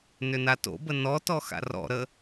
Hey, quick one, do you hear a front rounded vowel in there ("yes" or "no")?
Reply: yes